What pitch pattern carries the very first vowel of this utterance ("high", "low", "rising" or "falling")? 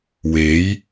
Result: rising